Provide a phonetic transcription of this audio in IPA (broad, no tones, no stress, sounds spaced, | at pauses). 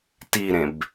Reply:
t i ɾ ẽ b